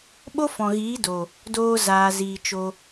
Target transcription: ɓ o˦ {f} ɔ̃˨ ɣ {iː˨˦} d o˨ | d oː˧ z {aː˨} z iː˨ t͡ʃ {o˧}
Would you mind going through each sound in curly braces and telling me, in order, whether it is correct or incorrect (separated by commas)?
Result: correct, correct, correct, correct